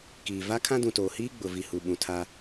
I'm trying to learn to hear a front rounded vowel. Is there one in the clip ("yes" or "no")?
no